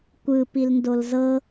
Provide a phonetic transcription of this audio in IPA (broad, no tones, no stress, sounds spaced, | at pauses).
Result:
kʷ ɯ p i l n d o l z ɤ